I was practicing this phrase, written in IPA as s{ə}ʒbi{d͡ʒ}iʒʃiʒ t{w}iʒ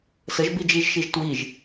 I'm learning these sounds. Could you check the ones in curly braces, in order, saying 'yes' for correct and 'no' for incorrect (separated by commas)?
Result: yes, yes, yes